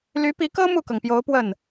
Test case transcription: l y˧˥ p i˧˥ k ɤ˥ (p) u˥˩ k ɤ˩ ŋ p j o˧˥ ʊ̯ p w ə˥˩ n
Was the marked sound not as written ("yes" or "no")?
yes